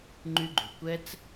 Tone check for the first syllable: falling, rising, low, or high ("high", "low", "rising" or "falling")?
high